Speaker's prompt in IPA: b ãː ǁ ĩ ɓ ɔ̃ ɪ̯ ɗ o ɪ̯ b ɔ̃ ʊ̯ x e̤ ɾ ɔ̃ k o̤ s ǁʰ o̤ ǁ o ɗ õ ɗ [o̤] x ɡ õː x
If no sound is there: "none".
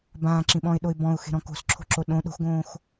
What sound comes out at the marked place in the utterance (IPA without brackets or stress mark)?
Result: o̤